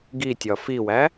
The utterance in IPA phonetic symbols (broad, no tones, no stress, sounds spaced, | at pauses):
ɡ i tʲ ɒ f i w æ